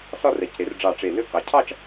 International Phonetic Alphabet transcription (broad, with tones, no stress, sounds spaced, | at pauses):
s ɒ˥˧ r ɛ˩˧ c ɾ e˩˧ r ɖ͡ʐ ɑ˧˩ ʈ͡ʂ e˧˩ l ø˥˧ k ɑ˩˧ cʰ ɑ˥˧ t͡ʃ